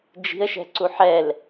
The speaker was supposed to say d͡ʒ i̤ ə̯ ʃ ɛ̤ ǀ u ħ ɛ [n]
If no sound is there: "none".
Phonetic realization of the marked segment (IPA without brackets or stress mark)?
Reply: l